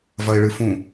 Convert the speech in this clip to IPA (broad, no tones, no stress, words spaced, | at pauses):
vɐɪ̯ɭɨfũ